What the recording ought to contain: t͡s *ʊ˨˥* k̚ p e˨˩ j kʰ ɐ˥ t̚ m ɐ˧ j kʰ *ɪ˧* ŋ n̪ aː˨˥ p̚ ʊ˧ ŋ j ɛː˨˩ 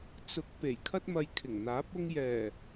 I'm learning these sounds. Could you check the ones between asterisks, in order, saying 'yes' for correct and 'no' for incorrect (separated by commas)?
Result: yes, no